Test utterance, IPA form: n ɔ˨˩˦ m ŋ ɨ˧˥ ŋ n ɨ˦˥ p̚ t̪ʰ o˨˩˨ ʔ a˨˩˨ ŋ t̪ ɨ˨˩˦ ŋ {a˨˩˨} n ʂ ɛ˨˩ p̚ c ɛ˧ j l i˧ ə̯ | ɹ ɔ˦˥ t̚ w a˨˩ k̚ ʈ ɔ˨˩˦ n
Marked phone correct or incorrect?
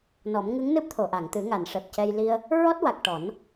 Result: correct